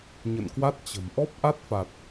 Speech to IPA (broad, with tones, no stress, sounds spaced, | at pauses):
ɲ ə̰˧˨ n k w a˦˥ t̚ t͡ɕ ə̤˨˩ m ʔ ɔ˦˥ p̚ ʔ a˦˥ t̚ f a˨˩ t̚